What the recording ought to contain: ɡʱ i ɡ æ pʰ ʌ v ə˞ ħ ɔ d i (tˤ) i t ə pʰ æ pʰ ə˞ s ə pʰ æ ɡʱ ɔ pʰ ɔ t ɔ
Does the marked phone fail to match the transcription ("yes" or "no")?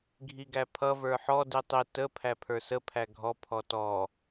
no